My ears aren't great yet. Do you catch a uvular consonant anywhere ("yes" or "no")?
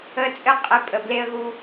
yes